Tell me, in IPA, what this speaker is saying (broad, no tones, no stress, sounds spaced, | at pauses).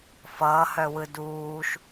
f ʌː h œ w ɯ d uː ʃ